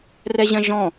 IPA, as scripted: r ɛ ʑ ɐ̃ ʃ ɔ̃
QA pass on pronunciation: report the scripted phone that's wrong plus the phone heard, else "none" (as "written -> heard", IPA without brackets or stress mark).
ʃ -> ʒ